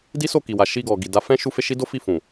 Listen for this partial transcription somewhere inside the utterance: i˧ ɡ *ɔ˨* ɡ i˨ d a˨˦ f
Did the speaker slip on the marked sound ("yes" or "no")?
no